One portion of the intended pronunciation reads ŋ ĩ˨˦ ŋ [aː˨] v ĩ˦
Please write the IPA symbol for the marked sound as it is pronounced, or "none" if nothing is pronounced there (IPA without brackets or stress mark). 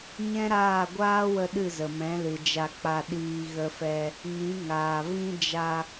aː˨